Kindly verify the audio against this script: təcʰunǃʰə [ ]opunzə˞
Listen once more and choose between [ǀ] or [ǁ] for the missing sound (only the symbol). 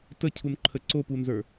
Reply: ǀ